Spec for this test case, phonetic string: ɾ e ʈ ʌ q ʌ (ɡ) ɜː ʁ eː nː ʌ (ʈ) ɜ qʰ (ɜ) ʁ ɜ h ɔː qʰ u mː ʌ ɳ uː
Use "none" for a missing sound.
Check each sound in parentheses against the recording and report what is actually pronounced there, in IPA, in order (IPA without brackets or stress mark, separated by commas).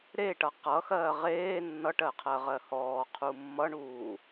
x, ʈ, ɜ